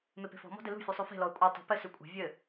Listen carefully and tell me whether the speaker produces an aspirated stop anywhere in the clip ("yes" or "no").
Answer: no